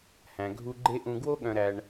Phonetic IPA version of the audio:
h æ̃˨ ɡʱ u˧ ɡ͡ǃ e˦ ʔ ũ˧ ɡ w o˦ ɠ œ̃˧ ɾ æ˧ ɳ

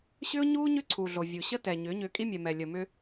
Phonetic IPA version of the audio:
ɕ ʏː˦ ʊ̯ ɲ uː˦ ɲ ʏː˦ ǀʰ uː˨ ɮ o˨ vʲ u˨ ɕ ə˦ t ɛː˨ ɲ ʏː˨˦ ɲ ʏː˧ kʼ i˦ mʲ ɛ˨ m ɛ˨ lʲ ə˨ m ʏ˦

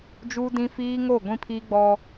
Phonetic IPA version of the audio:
d͡ʒ uː˦ d ĩ˦ f iː˦ ŋ o˦˨ ɡʷ ĩ˦ pʰ iː˦ ɡ͡b ɔ˦

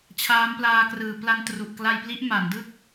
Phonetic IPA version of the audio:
t͡ɕʰ aː˦˥ m p l aː˧ k r ɯː˨˩ p l a˧ n t r u˨˩ ʔ k l a˧ j p l i˦˥ ʔ m a˩˦ n d ɯ˥˩ k̚

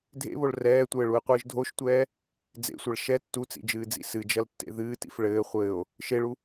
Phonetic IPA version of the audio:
dʱ ḛ β o ɭ r ɛː tʷ ɘː ɭ u e̯ qʷ ɨː ʒ dʱ o ʃ tʷ ɛː | d͡z ḛ sʷ ɐ ɭ ʃ ɛ tː u t͡s ḭ d͡ʒ ɨː d͡z ḭ s ɨ d͡ʒ ɐ l tː ḛ ð ɨː t ḭ f ɭ ɘː χʷ ɘː o̯ | ʃ e ɭ u

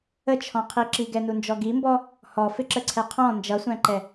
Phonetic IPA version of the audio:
ə t͡ʃʰ ɔ̃ qʰ i ǁ i ɡ ɛ n u n d͡ʒ ɔ ɡ i m b ɔ | h ɔ f ɪ ǁ ə ǀʰ ɛ qʰ ɔ̃ n d͡ʒ ʌ sʷ æ̃ ǃ ɛ

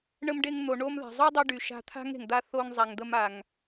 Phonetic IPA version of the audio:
ɳ ə˧ m ɖ e˧ ŋ n̪ o˨ ɳ o˧ m ð a̤˨ zˤ o˦ dˤ e˧ ɖ y˨ ʃ a̤˧ t̪ʰ a̤˦ ŋ e̤˨ ŋ d̪ a˧ θ o˧ ŋ zˤ a˨ ŋ d̪ ə˧ m a˨ ŋ

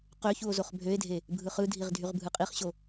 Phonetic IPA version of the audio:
q ø ç u o̯ z o χ bʱ ø e̯ dʱ e | bʱ ɯ χ ɯ dʱ i ʁ dʱ y ʁ bʱ ɯ qʼ i χ ɕ o

